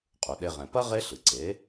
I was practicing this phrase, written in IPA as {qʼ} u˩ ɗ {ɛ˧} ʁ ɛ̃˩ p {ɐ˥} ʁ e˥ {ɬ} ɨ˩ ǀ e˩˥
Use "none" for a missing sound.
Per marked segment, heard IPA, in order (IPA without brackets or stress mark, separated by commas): qʼ, e˧, ɐ˥, ɬ